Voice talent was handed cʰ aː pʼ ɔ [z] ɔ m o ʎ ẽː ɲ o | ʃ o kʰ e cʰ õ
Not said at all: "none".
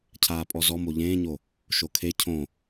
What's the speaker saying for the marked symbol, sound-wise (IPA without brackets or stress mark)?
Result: z